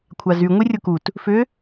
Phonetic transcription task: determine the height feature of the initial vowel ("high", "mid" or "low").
low